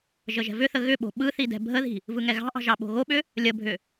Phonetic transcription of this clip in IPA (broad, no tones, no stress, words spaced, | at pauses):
ʒəʒɛ̤vʏθə ɣʏɓo̤ ɓɯθi dɛ̤bʱəði̤ | vɯŋɛɣɑ̤ʔɑ̤ ʒɑɓo̤ɣoɓʏ | lʲəbʱʏ